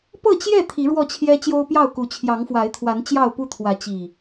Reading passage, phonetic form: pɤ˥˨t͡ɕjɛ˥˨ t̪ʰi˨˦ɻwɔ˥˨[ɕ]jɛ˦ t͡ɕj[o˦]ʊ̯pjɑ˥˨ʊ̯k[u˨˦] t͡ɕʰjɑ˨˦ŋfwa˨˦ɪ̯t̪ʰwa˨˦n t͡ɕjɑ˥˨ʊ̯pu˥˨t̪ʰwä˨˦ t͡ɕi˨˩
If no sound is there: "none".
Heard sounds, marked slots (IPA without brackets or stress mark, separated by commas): t͡ɕʰ, o˦, u˨˦